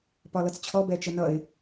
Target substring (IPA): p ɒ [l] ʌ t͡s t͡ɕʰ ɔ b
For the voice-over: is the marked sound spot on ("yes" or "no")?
yes